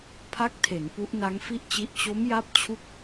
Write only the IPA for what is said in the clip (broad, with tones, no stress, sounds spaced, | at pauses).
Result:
pʰ a˦˥ k̚ tʰ e˩˦ n p u˦˥ ʔ n a˦˥ ŋ f i˥˩ ʔ t͡ɕ i˦˥ ʔ t͡ɕ o˦˥ m j a˦˥ p̚ t͡ɕʰ u˥˩ k̚